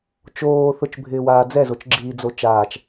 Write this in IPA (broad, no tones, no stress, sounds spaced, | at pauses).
t͡ʃ oː θ ʊ t͡ʃ bʱ ɪː w aː d͡z ɛ z o t͡ʃ ɡ͡ǁ iː d͡z o t͡ʃ aː t͡ʃ